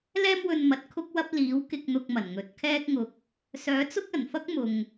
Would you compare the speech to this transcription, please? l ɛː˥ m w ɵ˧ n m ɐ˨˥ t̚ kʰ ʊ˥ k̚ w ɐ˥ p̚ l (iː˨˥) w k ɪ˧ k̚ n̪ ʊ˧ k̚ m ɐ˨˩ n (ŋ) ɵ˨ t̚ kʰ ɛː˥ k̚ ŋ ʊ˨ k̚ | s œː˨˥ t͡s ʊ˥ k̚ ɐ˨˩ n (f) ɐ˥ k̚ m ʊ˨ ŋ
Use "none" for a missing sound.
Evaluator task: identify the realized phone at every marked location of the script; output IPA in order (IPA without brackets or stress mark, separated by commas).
iː˨˥, ŋ, f